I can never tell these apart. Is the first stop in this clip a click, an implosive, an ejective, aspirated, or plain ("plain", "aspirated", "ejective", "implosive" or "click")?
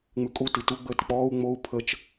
ejective